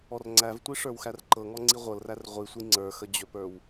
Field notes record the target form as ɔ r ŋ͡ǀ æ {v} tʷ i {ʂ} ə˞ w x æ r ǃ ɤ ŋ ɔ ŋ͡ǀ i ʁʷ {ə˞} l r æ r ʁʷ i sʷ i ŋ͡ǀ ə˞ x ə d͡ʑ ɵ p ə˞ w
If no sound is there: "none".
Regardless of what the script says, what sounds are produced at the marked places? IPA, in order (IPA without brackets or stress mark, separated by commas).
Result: v, ʂ, ɤ